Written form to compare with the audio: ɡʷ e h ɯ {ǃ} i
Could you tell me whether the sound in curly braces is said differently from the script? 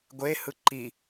no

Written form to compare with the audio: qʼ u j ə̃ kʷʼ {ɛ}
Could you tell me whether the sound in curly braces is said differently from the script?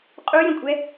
no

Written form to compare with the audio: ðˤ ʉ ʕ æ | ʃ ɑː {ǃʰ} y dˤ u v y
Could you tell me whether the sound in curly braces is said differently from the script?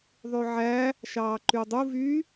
yes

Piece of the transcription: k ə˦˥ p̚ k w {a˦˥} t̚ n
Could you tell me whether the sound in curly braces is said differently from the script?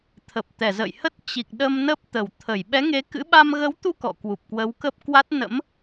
no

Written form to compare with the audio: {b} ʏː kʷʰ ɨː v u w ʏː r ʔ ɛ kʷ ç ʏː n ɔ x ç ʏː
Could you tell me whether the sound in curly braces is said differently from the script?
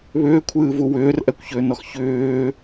yes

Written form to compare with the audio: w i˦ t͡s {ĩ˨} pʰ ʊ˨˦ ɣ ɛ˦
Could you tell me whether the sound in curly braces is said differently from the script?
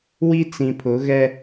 no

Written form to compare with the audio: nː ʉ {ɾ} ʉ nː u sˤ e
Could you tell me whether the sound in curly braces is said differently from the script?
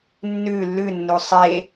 yes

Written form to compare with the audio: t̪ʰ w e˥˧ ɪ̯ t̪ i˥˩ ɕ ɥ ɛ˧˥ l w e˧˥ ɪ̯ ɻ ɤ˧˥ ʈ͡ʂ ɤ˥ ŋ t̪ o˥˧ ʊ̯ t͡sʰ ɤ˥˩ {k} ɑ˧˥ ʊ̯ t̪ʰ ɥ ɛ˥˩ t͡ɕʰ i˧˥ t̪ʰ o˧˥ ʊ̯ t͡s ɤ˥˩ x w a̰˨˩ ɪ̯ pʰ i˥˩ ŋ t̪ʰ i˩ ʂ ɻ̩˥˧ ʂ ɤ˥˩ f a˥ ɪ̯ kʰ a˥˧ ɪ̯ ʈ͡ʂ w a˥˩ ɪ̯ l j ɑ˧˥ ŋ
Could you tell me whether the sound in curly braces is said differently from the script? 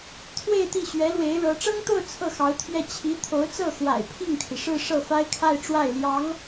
yes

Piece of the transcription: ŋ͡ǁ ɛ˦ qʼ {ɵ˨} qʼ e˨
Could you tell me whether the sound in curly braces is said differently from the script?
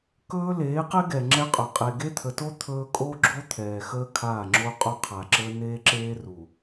no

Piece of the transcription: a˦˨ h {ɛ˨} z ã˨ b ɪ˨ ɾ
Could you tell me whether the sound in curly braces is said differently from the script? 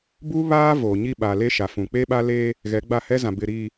yes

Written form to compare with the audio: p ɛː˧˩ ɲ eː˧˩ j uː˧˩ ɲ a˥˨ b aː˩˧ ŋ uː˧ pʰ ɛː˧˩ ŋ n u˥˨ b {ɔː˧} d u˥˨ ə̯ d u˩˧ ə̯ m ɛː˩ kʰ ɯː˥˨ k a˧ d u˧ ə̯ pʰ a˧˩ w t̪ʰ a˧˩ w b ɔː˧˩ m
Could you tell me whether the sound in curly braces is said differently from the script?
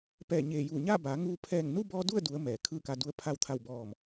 no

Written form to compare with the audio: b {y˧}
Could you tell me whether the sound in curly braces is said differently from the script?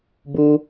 yes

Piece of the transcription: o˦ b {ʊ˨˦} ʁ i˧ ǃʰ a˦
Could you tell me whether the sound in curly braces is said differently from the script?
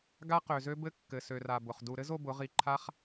no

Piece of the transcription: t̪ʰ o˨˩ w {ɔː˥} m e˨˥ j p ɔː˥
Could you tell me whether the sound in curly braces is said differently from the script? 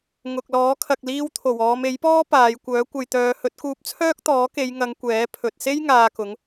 yes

